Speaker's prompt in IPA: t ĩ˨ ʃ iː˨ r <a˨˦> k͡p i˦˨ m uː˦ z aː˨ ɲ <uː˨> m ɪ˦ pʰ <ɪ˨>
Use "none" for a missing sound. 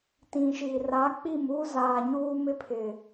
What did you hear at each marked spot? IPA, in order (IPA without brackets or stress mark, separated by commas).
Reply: a˨˦, uː˦, ɪ˨